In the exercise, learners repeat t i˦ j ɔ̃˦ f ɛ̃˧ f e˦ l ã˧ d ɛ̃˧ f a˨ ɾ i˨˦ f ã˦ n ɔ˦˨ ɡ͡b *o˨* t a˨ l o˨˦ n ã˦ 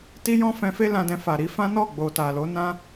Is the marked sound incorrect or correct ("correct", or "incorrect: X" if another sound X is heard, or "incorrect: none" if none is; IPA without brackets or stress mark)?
correct